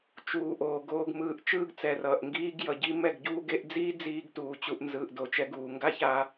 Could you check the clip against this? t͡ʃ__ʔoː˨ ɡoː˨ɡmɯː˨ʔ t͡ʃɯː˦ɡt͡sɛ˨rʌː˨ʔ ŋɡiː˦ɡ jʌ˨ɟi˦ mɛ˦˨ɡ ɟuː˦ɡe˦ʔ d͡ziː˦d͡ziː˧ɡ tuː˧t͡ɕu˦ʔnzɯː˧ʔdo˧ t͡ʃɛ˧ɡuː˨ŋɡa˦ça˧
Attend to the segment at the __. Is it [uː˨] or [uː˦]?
uː˨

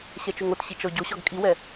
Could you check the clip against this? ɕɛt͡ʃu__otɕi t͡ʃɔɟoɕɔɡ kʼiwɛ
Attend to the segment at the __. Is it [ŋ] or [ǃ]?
ŋ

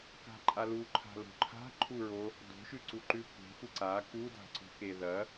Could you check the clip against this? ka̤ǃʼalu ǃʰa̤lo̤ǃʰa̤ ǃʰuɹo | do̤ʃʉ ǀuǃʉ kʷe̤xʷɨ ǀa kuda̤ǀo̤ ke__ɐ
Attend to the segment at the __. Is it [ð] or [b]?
ð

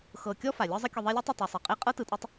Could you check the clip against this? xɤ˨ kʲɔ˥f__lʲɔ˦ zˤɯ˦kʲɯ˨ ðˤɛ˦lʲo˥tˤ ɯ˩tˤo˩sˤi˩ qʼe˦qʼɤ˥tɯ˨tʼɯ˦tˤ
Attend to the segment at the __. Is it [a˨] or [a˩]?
a˩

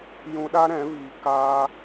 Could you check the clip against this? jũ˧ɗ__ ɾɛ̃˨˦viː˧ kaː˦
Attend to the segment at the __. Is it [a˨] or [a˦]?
a˦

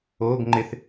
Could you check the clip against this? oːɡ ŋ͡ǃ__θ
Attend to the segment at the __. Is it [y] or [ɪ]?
ɪ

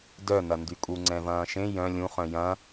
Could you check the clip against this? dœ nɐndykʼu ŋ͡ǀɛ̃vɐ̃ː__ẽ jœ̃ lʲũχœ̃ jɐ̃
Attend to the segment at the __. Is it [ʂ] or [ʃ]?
ʃ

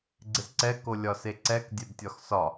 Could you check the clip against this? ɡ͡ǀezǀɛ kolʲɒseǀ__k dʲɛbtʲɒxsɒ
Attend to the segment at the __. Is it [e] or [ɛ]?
ɛ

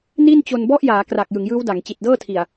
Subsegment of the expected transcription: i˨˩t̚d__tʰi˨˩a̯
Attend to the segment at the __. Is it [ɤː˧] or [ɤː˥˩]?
ɤː˥˩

